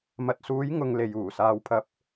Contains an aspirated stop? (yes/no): yes